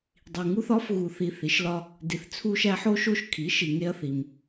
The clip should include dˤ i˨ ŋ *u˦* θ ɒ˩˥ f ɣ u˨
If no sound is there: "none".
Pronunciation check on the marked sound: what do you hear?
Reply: u˦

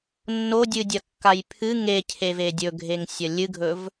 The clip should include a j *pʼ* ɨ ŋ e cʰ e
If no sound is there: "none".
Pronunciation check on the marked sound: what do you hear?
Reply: pʰ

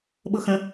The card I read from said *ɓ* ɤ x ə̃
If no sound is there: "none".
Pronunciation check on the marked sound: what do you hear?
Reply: ɓ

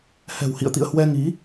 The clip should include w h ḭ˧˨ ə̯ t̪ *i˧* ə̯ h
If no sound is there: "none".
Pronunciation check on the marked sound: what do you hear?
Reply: ḭ˧˨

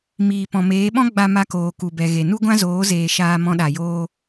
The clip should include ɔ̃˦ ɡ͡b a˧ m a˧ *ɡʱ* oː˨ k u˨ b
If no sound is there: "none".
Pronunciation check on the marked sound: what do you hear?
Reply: k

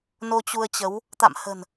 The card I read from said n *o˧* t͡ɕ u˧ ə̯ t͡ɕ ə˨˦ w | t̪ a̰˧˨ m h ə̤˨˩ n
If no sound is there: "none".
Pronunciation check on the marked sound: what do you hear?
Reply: o˧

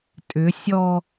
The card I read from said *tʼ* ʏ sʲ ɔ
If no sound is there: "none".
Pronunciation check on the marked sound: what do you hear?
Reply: tʼ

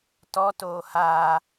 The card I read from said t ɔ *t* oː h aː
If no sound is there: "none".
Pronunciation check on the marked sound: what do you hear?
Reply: t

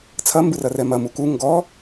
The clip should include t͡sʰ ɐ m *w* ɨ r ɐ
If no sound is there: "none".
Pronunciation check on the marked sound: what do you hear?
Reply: b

